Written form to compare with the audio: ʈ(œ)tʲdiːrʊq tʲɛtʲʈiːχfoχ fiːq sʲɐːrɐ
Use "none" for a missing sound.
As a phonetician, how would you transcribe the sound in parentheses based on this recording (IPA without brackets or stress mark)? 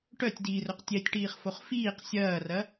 œ